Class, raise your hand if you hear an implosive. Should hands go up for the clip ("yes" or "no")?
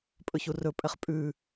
no